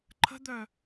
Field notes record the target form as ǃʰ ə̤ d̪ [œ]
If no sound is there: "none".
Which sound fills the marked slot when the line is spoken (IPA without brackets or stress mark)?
œ